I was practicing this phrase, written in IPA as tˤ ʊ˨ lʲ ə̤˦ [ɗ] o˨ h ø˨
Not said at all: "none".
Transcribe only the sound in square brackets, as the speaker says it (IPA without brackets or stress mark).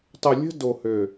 d